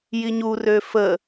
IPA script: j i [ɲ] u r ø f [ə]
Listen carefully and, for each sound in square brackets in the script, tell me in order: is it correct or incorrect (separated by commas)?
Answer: correct, correct